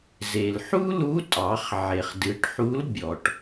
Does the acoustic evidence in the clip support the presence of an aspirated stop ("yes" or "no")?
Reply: no